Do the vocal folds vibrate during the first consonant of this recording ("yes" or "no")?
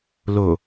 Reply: yes